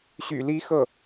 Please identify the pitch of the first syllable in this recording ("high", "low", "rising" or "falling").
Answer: low